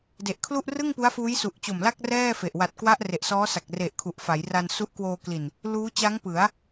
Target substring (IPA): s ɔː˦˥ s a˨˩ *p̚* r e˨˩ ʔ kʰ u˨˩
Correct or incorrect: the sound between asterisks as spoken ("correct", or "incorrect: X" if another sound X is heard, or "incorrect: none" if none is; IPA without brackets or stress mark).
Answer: incorrect: k̚